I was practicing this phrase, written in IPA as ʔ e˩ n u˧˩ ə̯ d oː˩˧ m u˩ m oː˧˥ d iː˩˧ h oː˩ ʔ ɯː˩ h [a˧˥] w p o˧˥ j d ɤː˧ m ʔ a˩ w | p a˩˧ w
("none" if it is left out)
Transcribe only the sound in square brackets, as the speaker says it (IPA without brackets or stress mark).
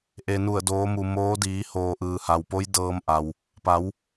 a˩